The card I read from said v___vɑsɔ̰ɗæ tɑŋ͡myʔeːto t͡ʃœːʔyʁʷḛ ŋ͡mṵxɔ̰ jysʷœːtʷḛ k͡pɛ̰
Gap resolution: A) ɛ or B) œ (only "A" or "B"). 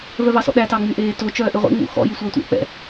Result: B